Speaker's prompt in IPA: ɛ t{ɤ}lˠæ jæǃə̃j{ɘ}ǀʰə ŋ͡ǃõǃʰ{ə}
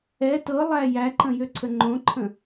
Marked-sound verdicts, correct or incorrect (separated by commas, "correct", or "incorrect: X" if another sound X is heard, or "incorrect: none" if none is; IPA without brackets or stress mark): correct, incorrect: ø, incorrect: ə̃